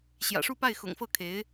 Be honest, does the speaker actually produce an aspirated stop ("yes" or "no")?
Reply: yes